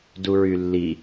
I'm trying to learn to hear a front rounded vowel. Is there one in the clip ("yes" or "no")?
yes